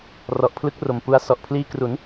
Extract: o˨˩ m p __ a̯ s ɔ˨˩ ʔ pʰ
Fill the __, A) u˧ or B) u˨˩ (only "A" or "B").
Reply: A